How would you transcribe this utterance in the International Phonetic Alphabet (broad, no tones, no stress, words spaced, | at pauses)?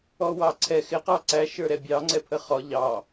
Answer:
ɔwɑǀʰɛ xɪ qɑǀæ ʃə˞ɾɛbʲɑ ŋ͡ǀɛpʰəχɔ ʎɑ